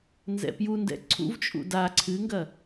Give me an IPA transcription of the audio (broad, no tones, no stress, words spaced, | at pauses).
nzɛ̰pjundɛ̰ ǀʰṵvt͡ʃʼṵ da ǀʰɨŋɡɐ